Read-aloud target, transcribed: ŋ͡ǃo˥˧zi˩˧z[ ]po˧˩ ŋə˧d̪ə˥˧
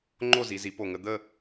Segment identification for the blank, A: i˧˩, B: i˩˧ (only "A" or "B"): B